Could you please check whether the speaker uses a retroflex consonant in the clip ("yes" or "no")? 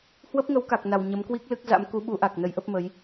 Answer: no